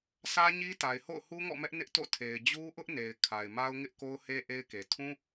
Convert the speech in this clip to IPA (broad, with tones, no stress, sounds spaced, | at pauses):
s ä˦ ɲ i˦ t a˨ ɪ̯ h o̰˦˨ ʊ̯ h u˦ ŋ ɔ̰˦˨ m ɛ˦ ʔ n ɪ˦ ʔ t o̰˦˨ tʰ e˨ ɪ̯ d͡ʑ u˦ ʔ ʊ˦ ʔ n e˨ ɪ̯ kʰ a˨ ɪ̯ m a˦ ʊ̯ ŋ ɪ˦ ʔ k o˦ ʊ̯ h e˦ ʔ e˦ ɪ̯ k e˨ tʰ ũ˦